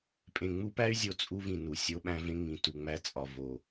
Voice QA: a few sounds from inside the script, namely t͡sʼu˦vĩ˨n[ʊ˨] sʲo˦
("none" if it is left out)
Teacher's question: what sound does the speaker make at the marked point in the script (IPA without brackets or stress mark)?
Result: u˨